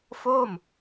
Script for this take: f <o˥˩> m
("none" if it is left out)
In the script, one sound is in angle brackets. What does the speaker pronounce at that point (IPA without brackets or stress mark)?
o˥˩